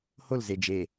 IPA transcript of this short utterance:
h o l z e d͡ʒ e

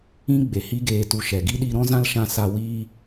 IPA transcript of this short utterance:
ĩ˦ ɡ͡b e˨ h i˦ ɡ eː˧ t u˧ ʃ ɛ˨ ɡ i˦ ɗ i˧ ɾ ɔ̃˦ z ã˦ l ʃ ã˧ s a˧ w iː˧

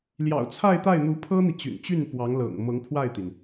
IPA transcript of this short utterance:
l j ɑ̰˨˩ ʊ̯ t͡sʰ a˥˧ ɪ̯ t̪ a˥˩ ɪ̯ n̪ u˧˥ pʰ ɤ˥ n̪ i˨ t͡ɕ y̰˨˩ n t͡ɕ y˥˩ n p w ɑ˧˥ ŋ l ɤ̰˨˩ ŋ m ɤ˧˥ ŋ pʰ w a˥˩ ɪ̯ t̪ i˩ n

